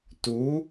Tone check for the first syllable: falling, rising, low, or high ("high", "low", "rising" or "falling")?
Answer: rising